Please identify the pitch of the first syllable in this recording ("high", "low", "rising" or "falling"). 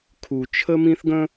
low